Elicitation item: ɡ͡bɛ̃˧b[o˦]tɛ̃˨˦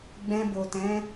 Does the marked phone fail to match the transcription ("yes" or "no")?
yes